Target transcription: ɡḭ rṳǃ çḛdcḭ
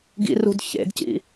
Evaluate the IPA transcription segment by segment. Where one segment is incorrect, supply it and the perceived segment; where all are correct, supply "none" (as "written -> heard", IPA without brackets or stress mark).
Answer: ǃ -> d